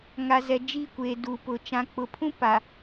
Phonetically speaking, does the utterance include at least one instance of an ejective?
no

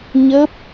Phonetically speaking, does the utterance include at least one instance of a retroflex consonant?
no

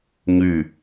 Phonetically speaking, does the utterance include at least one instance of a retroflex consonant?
no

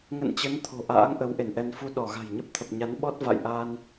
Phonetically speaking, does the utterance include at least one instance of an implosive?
yes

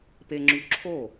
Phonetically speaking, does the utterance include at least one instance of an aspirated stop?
yes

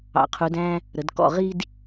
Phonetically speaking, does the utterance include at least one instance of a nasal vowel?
yes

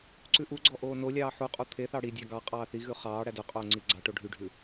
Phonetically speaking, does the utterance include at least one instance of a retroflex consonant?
yes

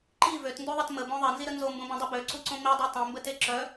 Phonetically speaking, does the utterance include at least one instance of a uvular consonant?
no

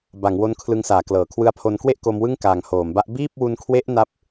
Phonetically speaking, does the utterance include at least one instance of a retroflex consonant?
no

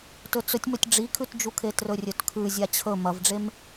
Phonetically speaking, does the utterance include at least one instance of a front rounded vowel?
no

